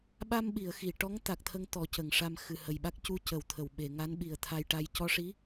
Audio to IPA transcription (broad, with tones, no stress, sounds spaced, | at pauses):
ɓ a˧ m ɓ i˨˩˨ ə̯ x i˨˩˨ ʈ ɔ˧˥ ŋ t̪ a˨˩ k̚ t̪ʰ ə˧ ŋ t̪ ɔ˨˩˦ c ə˨˩˨ ŋ ʂ a˧ m x ɨ˨˩ h ə˨˩ j ɓ a˦˥ k̚ c u˧˥ c ə˨˩˨ w t̪ʰ ə˨˩˨ w ɓ e˨˩˨ ŋ a˧˥ n ɓ i˨˩ ə̯ t̪ʰ a˧ j ʈ a˧ j c ɔ˧ ʂ i˧˥